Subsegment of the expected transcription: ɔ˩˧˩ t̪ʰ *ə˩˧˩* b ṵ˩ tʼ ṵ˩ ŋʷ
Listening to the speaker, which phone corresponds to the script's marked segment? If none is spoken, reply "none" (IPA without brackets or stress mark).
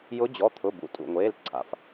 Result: ʊ˩˧˩